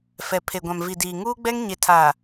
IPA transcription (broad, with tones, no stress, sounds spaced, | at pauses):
f ɛ˨ pʰ e˨ ɡʷ ã˨ m v i˨ d iː˨ ŋ uː˦ ɡ͡b ɛ˦ ŋ ɲ e˨ tʰ aː˨